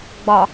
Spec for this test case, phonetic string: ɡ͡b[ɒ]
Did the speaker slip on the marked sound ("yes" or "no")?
no